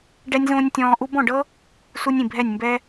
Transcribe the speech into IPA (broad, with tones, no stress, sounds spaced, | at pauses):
ɖ ɛ˦ nʲ z õː˦ nʲ tʲ ɔ̃ː˧ ʔ u˦ b ɔ̃˦˨ ɖ ɤ˦ | s u˦ nʲ ĩ˦˨ bʱ ɛ˦˨ nʲ m b ɛ˦